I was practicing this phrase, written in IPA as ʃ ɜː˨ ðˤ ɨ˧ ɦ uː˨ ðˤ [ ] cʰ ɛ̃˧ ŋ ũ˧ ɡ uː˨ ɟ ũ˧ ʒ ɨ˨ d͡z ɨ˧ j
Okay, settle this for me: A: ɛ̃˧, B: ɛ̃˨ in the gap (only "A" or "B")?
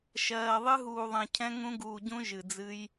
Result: B